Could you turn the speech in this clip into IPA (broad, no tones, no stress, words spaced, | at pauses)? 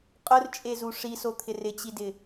qʼʊrt͡ʃʼezu ʂisot̪ʰɪ rɪt͡ɕidɪ